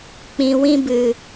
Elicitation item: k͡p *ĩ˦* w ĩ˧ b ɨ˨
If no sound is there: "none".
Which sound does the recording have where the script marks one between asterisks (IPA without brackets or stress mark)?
ĩ˨